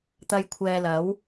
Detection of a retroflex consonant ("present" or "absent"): absent